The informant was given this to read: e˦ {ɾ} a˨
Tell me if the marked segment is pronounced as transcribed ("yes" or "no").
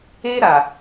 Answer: yes